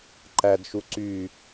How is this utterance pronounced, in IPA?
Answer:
ǃædʃu ǀy

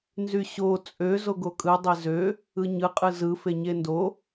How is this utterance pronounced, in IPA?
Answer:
nzyɕo t͡sʼø zoɡokʼɯ dˤezø | ɯɲɯ qʼɯzɯ feɲendo

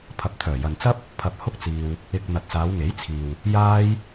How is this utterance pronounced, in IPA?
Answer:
pʰɐ˨p̚t̪ʰœː˨˩jɐ˨nt͡sɐ˥p̚ | pʰɐ˧p̚hʊ˥k̚t͡siː˧w | ɪ˧k̚ n̪ɐ˨t̚saː˨˧wŋe˨˥jt͡sʰiː˨w | jaː˥j

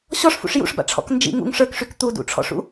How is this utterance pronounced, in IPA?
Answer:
ɕɔʂfṵʂ jṵʂba̰ʈ͡ʂʰɔ̰k nd͡ʒḭ ŋṵŋ ʂə˞kʂyk t̪udṵʈ͡ʂʰɔ̰ʂṵ

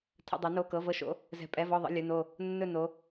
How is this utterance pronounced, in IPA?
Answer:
tʰə̰˩˧˩dˤɵ˩˧no˩˧˩ kɤ˩˧˩vɤ˧˩ʃo̰˩˧˩ | zɛ̤˩˧˩pʼɛ˩˧˩vɔ˧˩ðˤə̰˩˧˩ lʲɵ˩˧˩no˧˩ | nːɵ˧˩ no˩˧

